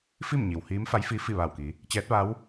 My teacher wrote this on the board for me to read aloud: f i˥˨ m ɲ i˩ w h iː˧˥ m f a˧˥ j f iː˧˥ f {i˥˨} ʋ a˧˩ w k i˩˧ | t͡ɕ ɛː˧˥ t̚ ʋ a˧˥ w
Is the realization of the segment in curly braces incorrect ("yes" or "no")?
no